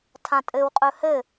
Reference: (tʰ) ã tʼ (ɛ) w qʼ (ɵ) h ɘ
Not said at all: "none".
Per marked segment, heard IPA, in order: tʰ, ɘ, ɵ

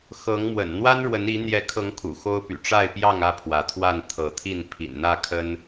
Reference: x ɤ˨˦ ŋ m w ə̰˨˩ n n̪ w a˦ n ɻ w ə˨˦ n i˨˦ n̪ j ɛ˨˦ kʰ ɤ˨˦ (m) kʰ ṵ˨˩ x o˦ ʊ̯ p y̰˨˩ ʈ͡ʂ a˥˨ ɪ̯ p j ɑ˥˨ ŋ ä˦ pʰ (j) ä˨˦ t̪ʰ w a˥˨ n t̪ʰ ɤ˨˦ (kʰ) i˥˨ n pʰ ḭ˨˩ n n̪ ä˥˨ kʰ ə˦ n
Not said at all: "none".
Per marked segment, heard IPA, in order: ŋ, w, t̪ʰ

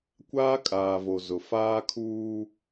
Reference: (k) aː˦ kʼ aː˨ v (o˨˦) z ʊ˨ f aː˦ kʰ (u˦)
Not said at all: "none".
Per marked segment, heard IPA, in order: kʷ, o˨, uː˦

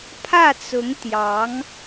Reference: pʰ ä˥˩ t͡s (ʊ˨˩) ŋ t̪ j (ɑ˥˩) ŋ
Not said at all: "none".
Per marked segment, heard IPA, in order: ʊ˧˥, ɑ˧˥

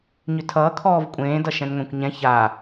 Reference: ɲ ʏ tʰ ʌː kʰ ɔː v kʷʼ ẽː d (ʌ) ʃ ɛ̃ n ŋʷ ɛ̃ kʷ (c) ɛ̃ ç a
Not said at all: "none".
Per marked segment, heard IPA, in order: ʌ, ɲ

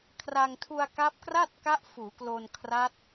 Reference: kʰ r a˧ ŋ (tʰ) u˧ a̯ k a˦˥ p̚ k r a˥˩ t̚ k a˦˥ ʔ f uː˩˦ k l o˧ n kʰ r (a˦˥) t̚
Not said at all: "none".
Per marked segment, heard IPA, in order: tʰ, a˦˥

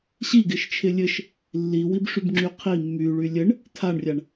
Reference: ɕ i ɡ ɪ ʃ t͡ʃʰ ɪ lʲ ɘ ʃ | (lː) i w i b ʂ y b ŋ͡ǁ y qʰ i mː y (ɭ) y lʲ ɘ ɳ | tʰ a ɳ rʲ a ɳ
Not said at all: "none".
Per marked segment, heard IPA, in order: lː, ɭ

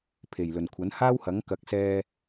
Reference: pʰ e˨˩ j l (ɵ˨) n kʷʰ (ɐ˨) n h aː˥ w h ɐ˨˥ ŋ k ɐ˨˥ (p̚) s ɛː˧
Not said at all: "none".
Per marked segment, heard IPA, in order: ɵ˨˩, ɐ˨˥, k̚

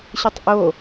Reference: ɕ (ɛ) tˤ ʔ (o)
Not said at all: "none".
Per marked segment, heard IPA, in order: ɨ, o

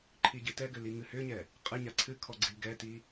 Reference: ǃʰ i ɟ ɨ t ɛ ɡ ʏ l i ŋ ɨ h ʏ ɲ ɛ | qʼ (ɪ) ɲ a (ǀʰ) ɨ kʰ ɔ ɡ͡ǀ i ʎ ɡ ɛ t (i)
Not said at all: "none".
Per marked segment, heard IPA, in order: ɨ, ǀʰ, i

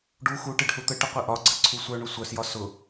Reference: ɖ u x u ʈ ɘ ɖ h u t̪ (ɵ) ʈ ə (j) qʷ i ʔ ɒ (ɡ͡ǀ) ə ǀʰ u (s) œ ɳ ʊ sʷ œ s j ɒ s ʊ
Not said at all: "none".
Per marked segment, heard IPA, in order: ə, none, ɡ͡ǀ, sʷ

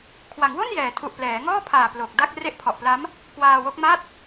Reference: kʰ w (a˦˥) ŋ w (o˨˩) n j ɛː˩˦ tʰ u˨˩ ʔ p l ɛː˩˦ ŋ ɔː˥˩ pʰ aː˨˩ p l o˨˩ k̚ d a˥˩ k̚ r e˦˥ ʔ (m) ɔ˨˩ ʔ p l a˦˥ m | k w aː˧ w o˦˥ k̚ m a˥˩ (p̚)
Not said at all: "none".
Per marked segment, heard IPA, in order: a˩˦, o˥˩, pʰ, t̚

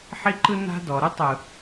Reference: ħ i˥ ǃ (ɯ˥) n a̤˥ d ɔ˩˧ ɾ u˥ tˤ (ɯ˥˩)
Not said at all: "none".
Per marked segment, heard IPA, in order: ɯ˥, ɯ˨˩

